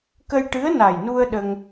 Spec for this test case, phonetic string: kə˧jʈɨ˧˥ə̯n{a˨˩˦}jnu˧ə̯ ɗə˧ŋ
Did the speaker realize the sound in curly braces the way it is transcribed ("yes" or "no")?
no